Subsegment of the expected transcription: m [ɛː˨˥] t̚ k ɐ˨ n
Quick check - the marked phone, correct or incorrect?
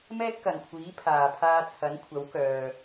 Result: incorrect